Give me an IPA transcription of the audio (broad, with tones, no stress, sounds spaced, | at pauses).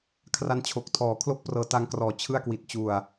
kʰ r a˦˥ n t͡ɕʰ o˨˩ k̚ tʰ ɔː˨˩ kʰ l o˥˩ k̚ p r ɤː˧ t a˦˥ ŋ k r ɔː˨˩ t͡ɕʰ ɯ˥˩ a̯ k w i˨˩ t̚ t͡ɕ u˨˩ a̯